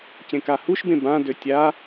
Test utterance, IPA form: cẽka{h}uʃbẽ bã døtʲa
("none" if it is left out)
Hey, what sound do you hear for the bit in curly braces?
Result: h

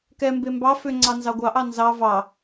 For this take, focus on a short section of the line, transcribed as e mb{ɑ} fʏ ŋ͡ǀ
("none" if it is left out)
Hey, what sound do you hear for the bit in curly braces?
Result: ɑ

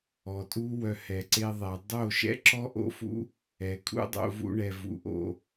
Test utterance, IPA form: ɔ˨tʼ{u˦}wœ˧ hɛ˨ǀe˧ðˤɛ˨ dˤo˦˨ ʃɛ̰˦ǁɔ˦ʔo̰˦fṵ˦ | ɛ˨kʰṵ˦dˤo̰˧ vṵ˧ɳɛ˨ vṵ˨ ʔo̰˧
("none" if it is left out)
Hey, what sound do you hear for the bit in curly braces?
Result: u˦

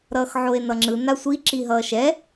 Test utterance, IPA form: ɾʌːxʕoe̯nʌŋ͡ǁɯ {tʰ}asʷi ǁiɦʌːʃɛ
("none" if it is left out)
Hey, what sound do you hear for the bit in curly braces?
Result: n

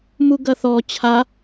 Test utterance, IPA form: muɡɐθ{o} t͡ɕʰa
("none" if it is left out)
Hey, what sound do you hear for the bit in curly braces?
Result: ɔ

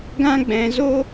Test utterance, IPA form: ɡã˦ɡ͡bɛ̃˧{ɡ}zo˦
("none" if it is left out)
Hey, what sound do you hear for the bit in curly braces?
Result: none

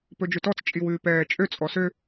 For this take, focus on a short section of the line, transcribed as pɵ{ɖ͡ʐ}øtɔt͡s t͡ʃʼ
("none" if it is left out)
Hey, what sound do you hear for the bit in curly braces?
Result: d͡ʒ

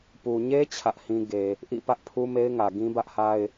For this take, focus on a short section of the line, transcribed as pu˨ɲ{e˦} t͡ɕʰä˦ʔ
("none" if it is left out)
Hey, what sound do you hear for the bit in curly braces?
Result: e˦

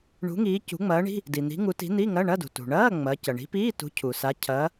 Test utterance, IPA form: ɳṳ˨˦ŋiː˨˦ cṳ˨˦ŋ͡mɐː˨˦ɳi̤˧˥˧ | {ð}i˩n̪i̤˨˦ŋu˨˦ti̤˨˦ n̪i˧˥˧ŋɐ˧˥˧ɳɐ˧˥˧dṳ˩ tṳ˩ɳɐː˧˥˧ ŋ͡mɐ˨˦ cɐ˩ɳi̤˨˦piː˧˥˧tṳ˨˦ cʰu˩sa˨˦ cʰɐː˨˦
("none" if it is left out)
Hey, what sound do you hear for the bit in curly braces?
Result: d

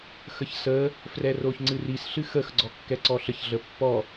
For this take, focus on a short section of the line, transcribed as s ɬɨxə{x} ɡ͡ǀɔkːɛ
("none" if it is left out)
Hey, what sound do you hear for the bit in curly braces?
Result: x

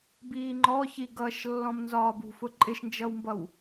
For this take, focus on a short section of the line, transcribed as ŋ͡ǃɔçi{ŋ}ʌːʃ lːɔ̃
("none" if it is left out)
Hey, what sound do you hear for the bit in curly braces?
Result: ɡ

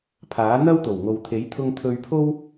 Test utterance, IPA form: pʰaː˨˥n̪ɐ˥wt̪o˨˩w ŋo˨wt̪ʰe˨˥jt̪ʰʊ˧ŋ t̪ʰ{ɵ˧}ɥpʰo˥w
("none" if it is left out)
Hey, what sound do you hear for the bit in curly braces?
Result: ɵ˧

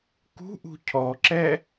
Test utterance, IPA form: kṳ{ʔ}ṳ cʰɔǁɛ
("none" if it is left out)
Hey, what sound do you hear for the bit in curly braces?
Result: ʔ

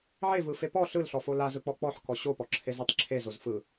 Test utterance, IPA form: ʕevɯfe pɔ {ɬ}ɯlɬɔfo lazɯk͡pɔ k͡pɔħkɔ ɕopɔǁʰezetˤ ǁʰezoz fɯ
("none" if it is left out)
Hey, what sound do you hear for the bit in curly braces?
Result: ɬ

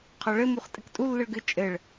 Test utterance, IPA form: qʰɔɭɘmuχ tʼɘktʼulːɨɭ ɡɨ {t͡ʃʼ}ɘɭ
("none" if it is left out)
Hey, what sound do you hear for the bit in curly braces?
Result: t͡ʃʼ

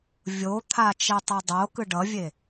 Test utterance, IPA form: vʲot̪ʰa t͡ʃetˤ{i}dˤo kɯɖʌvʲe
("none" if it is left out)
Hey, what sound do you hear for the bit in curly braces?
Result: e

